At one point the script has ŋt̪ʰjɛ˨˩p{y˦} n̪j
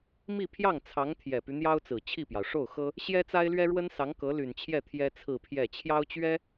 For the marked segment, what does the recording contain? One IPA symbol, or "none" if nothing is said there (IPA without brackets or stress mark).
y˦